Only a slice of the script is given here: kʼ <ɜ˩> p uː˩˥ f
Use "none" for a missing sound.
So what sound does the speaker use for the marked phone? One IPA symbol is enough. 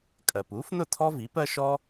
ɜ˩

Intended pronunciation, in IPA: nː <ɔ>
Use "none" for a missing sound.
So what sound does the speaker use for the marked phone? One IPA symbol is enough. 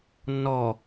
ɔ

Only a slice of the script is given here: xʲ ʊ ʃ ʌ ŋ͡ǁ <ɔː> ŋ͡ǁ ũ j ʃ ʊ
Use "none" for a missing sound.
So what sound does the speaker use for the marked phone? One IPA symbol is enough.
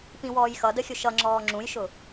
ɔː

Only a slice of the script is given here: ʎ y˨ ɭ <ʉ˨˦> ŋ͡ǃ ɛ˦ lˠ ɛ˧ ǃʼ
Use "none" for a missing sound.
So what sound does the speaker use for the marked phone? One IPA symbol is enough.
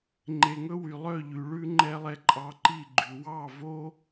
ʉ˦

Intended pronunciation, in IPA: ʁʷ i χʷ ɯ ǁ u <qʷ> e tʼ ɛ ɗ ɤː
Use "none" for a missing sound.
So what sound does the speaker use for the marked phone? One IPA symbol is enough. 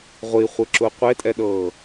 qʷ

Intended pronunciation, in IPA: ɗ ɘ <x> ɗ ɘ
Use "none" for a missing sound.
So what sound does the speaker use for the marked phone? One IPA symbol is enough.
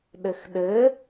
x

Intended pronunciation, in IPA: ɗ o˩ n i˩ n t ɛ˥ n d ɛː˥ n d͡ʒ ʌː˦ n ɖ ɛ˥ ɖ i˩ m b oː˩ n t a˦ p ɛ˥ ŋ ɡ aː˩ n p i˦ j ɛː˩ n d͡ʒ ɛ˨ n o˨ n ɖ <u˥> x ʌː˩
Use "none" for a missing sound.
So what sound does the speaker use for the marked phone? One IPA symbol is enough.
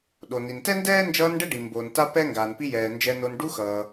u˦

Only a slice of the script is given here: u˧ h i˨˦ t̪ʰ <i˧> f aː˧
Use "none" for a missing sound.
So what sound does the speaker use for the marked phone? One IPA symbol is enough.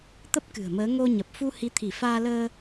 i˧˩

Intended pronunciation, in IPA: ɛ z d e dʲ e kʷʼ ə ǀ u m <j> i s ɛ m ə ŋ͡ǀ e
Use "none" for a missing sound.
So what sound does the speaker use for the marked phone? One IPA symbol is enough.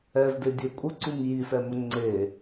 j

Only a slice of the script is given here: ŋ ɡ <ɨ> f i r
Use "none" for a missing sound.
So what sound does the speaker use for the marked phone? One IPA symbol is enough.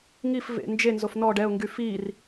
y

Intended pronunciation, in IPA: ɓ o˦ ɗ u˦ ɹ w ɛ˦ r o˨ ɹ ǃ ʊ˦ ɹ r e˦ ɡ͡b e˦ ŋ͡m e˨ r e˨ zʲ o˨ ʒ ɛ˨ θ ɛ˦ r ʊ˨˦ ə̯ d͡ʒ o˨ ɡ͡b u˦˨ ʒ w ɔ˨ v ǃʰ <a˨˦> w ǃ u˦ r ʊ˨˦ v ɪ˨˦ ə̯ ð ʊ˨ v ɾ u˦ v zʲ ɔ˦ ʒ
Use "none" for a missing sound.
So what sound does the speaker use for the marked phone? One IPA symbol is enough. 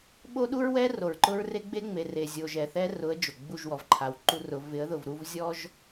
a˨˦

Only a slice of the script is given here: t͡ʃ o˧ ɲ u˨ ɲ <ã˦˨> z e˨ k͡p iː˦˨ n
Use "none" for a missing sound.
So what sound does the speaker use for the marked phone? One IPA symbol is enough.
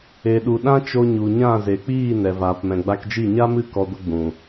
ã˦˨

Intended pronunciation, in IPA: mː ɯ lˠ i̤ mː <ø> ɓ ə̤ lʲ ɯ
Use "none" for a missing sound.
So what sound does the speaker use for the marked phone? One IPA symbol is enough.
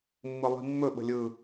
ɵ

